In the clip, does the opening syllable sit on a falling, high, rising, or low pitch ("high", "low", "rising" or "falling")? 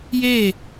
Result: falling